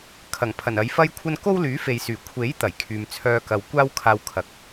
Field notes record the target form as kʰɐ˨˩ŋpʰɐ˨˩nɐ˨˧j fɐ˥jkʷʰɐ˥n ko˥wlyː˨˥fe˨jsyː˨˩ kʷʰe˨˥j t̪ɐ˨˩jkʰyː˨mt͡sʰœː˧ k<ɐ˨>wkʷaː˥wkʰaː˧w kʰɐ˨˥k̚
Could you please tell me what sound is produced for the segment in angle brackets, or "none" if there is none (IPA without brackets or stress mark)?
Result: ɐ˨